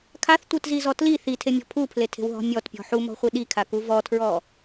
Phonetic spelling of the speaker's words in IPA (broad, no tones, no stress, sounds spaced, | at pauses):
kʰ a θ tʷ ɯ t z i z ɔ t l i θ i tʰ e mʲ ɔ̤ pʰ u pʰ l e tʰ e̤ w ɦ ɔ̤ mʲ ɔ t pʲ ɔ̤ ħ u m ɔ̤ χʷ i ɗ i kʰ a k u v ɔ tʰ ɹ ɔ